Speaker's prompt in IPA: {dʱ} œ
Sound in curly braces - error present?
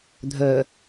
no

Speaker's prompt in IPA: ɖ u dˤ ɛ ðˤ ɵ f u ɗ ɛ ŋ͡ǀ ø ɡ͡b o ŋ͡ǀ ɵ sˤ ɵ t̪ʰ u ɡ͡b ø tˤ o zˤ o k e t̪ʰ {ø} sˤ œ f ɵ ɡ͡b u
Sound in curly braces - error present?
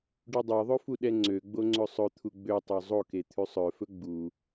yes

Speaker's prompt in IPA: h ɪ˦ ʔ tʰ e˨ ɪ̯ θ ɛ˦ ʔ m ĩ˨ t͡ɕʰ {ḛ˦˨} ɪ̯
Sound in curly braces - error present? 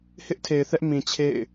no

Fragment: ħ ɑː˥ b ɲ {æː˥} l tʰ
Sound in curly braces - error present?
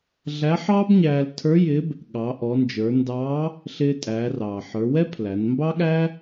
yes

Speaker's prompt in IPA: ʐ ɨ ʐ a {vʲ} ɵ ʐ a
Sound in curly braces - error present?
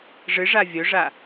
no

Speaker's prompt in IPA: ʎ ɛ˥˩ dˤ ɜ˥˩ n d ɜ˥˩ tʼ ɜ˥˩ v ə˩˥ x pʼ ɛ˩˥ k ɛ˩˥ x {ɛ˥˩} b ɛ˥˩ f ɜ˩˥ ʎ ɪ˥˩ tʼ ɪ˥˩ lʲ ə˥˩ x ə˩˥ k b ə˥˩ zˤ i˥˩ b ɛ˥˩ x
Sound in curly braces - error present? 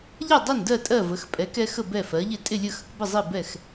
yes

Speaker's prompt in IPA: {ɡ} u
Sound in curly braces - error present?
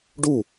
yes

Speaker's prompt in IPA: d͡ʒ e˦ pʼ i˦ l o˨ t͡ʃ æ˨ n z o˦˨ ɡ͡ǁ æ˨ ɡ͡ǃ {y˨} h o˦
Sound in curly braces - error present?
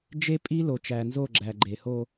yes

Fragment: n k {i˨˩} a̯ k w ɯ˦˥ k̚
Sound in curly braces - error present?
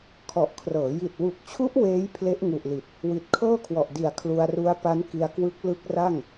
yes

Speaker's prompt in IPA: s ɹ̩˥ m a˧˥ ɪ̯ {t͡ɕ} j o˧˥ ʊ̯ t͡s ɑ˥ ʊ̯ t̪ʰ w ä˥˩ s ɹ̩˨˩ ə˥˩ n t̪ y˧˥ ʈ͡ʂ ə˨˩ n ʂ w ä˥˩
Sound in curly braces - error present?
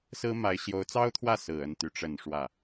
yes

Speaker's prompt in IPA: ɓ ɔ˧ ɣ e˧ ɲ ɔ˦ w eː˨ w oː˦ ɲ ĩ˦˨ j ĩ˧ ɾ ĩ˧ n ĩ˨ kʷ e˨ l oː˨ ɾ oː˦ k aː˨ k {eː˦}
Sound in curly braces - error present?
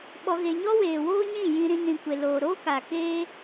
no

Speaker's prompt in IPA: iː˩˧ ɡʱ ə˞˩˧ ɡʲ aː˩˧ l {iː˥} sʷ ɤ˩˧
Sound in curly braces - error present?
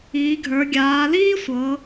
no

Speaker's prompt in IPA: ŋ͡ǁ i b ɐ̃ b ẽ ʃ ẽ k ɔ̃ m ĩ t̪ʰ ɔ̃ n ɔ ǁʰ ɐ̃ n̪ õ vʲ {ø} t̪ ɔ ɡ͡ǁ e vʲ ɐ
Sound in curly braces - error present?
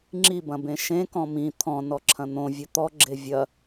yes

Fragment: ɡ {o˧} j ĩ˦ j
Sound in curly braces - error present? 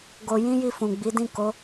no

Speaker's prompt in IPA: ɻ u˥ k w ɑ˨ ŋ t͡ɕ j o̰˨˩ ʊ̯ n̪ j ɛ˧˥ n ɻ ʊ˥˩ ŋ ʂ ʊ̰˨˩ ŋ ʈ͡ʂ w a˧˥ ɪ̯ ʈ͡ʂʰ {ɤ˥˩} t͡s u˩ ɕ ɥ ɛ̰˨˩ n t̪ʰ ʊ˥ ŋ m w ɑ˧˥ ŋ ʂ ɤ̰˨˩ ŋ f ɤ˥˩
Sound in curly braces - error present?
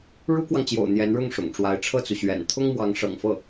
no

